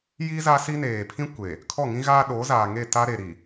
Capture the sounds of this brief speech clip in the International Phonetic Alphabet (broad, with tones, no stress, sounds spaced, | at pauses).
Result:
j i˦ z a˦ s i˦ n eː˨ pʰ ĩ˦ kʷ e˨ | kʰ ɔ˦˨ ŋ ĩ˦ ɣ aː˦ ɗ o˨˦ z aː˨ ŋ e˦˨ t a˦ ɾ e˨ ɾ i˨